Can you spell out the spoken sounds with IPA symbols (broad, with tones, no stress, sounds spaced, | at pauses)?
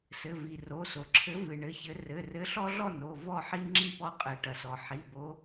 s ɘ˩˧˩ v i˩ r o˩˧˩ s o˩ ǁʰ ɘ˨˥ v ɨ˩ ɳ ɘ˩˧˩ ç ɘ˨˥ r ɘ˩˧˩ r ɘ˨˥ ɬ ɔ˦ ɮ ɔ˥˨ n o˩˧˩ v ɔ˥˨ ħ i˦ ŋ͡ǁ i˥˨ p ɔ˦ qʼ ɘ˩ ʈ ɐ˩ s ɔ˩ ħ i˩˧˩ b o˨˥